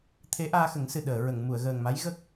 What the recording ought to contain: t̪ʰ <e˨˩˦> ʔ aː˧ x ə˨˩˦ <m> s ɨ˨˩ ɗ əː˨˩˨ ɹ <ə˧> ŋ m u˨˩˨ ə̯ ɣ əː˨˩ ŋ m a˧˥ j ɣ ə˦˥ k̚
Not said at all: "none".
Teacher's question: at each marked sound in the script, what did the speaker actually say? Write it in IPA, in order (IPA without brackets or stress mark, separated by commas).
e˧˥, ŋ, ə˨˩˨